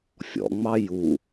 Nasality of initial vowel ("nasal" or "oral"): oral